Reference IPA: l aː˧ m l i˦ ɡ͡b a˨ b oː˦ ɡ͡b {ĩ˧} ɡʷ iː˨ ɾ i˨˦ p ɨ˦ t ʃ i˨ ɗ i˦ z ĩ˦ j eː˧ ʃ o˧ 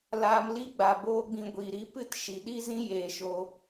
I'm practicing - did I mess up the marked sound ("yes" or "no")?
no